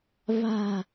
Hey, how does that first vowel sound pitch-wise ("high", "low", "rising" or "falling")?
low